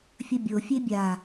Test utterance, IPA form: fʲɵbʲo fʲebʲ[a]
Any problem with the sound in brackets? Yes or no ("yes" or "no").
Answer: no